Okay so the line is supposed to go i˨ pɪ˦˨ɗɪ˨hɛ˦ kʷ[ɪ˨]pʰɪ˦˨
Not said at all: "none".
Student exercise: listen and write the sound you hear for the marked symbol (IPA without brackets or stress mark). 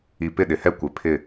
ɪ˨